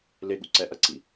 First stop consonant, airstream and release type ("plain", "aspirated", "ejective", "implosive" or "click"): implosive